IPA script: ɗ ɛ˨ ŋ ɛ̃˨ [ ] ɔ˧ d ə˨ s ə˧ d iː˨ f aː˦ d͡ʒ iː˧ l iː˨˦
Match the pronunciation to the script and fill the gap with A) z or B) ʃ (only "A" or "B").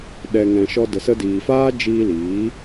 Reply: B